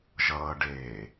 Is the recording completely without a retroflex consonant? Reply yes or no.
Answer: no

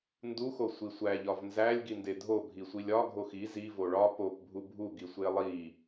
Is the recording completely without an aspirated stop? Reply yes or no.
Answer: yes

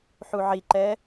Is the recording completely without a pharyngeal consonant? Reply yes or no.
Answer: no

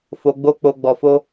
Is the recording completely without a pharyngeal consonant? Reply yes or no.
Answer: yes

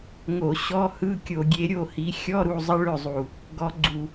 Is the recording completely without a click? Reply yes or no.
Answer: no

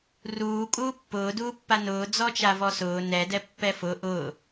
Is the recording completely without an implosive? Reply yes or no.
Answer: yes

